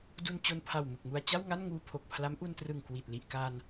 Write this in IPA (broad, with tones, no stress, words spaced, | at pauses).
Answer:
du˧n t͡ɕo˧npʰa˨˩w mɯ˨˩k̚mu˧a̯ t͡ɕa˥˩wŋa˥˩nŋuː˧ pʰo˨˩k̚pʰla˦˥mʔu˧ntrɯ˨˩ŋ kwi˨˩t̚ li˨˩ʔka˧n